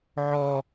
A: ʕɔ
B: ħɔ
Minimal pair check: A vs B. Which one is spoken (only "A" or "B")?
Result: A